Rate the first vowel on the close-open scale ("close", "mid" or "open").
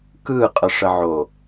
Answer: close